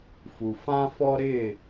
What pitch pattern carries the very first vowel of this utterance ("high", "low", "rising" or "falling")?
low